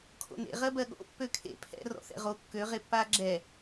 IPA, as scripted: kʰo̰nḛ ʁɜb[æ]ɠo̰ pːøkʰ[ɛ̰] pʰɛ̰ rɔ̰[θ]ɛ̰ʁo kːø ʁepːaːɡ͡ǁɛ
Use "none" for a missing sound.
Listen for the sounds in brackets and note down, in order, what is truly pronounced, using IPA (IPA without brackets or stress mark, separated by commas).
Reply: ɜ, ḛ, θ